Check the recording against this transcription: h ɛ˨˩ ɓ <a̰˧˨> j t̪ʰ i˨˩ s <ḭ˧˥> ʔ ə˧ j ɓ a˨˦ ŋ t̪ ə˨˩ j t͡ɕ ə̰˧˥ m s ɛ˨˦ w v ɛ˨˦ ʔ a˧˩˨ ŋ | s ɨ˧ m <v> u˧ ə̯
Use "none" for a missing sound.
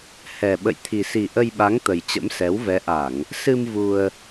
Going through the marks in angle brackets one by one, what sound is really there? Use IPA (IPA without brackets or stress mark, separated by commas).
ə̰˧˨, i˨˩, v